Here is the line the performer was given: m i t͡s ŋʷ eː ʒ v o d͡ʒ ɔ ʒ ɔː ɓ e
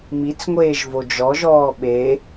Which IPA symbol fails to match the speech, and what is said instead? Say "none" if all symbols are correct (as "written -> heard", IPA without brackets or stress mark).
none